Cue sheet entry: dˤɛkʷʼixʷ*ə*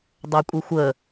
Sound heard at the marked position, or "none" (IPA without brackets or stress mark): ə